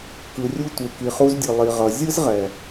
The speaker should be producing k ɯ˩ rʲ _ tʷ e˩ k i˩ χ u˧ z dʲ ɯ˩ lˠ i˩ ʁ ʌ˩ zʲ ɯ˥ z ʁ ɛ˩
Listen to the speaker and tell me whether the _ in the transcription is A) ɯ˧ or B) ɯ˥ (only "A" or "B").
A